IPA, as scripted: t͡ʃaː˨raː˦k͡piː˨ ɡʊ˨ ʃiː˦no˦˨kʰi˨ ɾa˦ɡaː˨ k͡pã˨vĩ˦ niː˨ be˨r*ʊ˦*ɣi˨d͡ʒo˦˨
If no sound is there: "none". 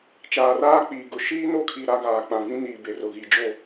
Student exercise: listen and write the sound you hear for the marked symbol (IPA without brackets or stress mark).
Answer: ʊ˨